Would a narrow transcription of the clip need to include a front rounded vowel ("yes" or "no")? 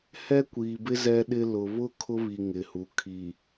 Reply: no